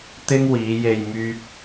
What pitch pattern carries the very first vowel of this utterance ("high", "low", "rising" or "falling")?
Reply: high